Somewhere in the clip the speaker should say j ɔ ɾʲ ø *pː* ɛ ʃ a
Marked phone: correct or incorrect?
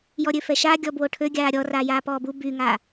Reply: incorrect